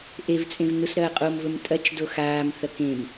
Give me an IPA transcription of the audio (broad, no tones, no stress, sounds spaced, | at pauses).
ʔ e v t͡sʼ ẽ v n u s ɾ ɐː qʼ o m v ɵ m tʼ ɐ t͡ʃ d o x aː m θ ɐ k ẽ m